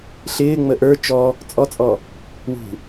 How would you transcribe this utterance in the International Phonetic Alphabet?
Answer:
ɬɪːŋ͡mə ʔə˞ t͡ʃɔ | t͡sʼɔt͡sʼɔ | wṳ

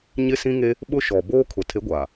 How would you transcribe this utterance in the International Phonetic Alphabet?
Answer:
ɲɪ˦sĩ˦ŋe˦ | ɓʊ˦ʃɔ˨ boː˦kʰʊ˨ tʰe˨˦ɡʷaː˨

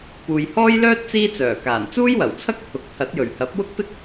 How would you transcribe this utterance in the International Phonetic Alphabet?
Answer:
puː˨jhɔː˥jlœː˥t̚ t͡siː˥t͡sœː˨˩kaː˨˩n t͡suː˥jwɐ˨˩wt͡sʰɐ˥k̚ t̪ʰʊ˨˥k̚t̪ʰɐ˨˥t̚jɵ˨˩ɥ hɐ˨˥p̚ wʊ˥k̚pɪ˥k̚

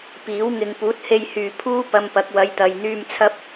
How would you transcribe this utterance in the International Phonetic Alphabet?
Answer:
piː˨˥w ŋɪ˨ŋpuː˨˥t̚he˧jhyː˨ pʰuː˥ pɐ˧m pɐ˨˥k̚wɐ˨˧jt̪ɐ˨j n̪yː˧m t͡sʰɐ˥p̚

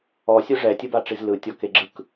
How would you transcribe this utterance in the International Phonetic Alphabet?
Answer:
ɔsʲɯ ʐɛtʲɯbaʈ͡ʂiz lɯtʲɔkeɡ͡ǁɯk

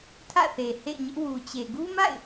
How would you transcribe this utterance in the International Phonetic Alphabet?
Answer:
tʰä̰˦˨θe˨hḛ˦˨ɪ̯ɲɪ˦ʔ wu˨ t͡ɕe˨ɡu˦ma̰˦˨ɪ̯

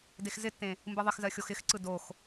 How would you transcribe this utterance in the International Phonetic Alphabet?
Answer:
dexzɪtːẽ | mbɯðˤɪxzɜ xʲoxɪxǀɯ dox

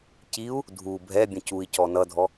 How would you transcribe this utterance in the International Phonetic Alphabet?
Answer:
ciu̯ | dʱu bʱɛ bʲə̃cui̯cɔ nʌdʱɔ

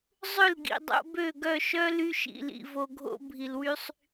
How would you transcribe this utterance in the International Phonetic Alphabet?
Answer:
zˤʏ˦˨lɡḭ˨dˤo̰˧ bø˦˨ɡœ˦˨ʃœ˦ ly˧ʃḭ˨lḭ˨ vo˧ɡʱo̰˦ bʱi˨lwy˧sˤ

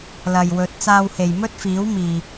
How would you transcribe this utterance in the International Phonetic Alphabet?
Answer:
lɐ˨jwɵ˨˥t̚ t͡saː˧whe˨j mɵ˥t̚fiː˨˥w miː˨

